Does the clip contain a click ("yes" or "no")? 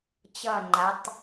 yes